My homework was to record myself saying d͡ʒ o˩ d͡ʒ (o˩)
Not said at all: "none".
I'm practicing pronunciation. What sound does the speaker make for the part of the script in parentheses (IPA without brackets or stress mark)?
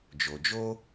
o˥